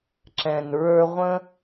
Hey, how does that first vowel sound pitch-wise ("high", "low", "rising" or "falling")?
low